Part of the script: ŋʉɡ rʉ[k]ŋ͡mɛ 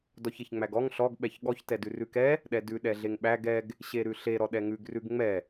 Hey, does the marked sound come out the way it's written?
no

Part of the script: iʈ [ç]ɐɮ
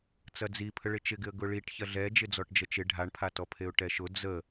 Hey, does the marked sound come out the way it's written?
yes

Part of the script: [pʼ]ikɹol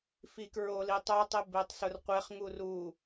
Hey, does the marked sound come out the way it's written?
no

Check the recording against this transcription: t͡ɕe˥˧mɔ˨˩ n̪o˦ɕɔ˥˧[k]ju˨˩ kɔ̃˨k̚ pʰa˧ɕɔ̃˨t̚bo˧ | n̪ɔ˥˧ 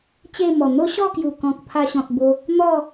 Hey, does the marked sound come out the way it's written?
yes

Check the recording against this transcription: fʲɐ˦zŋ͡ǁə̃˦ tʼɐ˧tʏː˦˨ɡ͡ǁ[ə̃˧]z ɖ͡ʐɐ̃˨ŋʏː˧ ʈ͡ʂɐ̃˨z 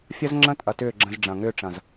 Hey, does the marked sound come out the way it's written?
yes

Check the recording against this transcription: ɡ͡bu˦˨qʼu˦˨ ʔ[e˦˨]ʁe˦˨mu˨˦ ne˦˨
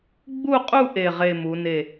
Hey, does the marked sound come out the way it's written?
yes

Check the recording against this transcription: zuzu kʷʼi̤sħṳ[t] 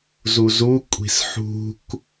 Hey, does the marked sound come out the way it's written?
no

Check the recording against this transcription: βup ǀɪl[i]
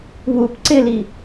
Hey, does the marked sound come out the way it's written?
yes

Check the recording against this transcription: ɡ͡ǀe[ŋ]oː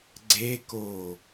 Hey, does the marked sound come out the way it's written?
no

